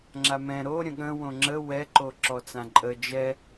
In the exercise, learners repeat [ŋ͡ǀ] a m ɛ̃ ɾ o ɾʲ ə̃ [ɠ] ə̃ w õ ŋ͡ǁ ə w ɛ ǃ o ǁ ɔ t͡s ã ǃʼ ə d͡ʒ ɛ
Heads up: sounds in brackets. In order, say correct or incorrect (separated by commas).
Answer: incorrect, correct